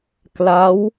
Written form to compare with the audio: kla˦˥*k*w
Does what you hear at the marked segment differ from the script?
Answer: yes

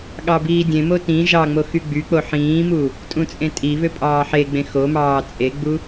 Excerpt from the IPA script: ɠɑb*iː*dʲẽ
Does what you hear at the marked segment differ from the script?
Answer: no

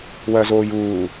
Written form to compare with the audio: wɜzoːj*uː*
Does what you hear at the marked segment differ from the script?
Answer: no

